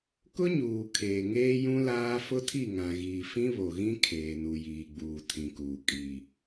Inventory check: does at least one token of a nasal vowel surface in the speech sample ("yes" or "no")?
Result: yes